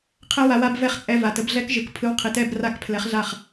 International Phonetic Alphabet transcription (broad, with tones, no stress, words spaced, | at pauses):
qʰɛ˦˥wa˨˥wa˧˥˧bvɛ˦˥χ t͡sʼɛ˧˥˧va˨tə˨˥b ɮɛ˦˥kʒɯ˨k pʰɯ˨˥w qʰi˨ tɛ˥˧bra˥˩k pʰlɛ˨˥χɮa˥˩χ